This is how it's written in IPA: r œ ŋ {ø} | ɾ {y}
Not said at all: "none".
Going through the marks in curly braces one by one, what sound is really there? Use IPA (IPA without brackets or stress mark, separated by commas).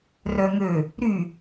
ø, y